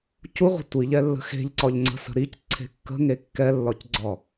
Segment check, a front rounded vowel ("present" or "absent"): absent